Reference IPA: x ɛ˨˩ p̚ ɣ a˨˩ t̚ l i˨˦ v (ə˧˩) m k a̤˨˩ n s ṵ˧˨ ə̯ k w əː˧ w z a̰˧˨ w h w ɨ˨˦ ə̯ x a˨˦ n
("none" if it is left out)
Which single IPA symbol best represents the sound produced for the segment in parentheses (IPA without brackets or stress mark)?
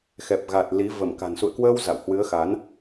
ə˧˩